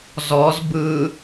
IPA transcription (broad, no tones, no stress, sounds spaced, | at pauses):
z ɔ z b ɯ